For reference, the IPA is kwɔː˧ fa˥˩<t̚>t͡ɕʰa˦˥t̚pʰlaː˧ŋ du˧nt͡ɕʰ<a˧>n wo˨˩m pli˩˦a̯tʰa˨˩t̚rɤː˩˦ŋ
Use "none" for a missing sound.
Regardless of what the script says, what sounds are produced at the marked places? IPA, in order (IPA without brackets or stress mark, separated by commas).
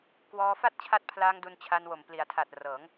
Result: t̚, a˧